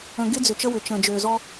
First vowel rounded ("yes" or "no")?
no